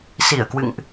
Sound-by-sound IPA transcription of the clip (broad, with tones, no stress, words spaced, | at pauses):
si˧˩ə̯kwɨ̰˧˨ŋʔ